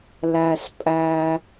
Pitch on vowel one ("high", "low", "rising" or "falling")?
low